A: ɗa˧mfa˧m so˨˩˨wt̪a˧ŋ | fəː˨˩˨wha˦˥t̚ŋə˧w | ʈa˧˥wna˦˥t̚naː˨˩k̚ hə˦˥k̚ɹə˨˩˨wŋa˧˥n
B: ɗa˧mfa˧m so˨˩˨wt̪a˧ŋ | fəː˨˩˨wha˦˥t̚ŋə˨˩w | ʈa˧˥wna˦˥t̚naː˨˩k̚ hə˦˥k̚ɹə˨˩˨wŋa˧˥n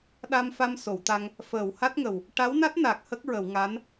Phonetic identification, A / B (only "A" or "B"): B